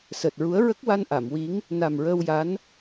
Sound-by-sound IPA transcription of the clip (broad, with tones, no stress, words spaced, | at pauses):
səː˨˩t̚ɹu˧˥ə̯ ɹə˦˥k̚wa˧n ʔa˨˩˨mwi˧˥ŋ | na˨˩mɹəː˧wja˧˥n